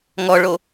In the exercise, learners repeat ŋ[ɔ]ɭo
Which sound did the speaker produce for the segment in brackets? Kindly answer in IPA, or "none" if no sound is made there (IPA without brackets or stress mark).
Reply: ɔ